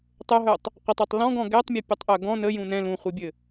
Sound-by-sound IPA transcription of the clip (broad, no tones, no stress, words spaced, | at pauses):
tˤœɦœtˤ | qʷətˤœtˤ lɔ̃ɡɔ̃ ɡɛtˤmʲɛpʲɛtˤʔœ ɡɔ̃ nəjũ nɛ̃ lũχʷibʲɘ